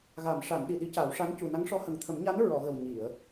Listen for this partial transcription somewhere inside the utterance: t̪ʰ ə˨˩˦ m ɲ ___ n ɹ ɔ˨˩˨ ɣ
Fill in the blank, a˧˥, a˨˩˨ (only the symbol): a˧˥